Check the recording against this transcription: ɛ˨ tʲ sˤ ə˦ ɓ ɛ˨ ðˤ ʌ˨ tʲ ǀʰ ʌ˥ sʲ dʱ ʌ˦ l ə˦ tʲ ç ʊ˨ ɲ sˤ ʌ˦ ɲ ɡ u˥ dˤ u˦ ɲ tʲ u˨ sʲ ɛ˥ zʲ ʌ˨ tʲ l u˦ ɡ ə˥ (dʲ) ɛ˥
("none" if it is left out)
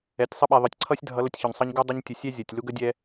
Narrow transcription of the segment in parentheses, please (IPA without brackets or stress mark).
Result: dʲ